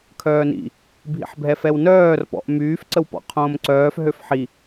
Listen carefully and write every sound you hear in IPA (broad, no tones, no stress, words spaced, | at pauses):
kʰœːnḭ | bʱḭħbʱɛfɛwnœːr pɔ̰ʔ myːfǀəwpɔ̰ qʰõːmǀœːf ɦøfħi